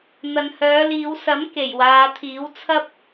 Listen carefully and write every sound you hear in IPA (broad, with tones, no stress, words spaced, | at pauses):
n̪ɐ˨nhœː˨˧liː˨˧wsɐ˨˥m ke˨˩jwaː˨˧t̪ʰiː˨˥w t͡sʰɐ˥p̚